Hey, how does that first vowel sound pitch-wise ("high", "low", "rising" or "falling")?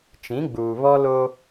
rising